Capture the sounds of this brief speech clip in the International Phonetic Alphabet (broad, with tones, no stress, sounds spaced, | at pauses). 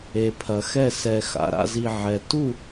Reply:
e˩ pʰ ɐ˩ x ɛ˥˩ s ɛ˩ x a̰˩ ɾ a̰˥˩ z i˩ ʕ ɛ˩ t u˥˩